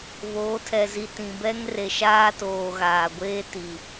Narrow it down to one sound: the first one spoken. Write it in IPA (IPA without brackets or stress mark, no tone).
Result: β